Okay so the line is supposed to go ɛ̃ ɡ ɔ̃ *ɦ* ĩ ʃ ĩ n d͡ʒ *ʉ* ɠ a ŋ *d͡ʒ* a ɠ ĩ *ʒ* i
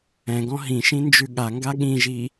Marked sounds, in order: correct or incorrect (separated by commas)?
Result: correct, correct, incorrect, correct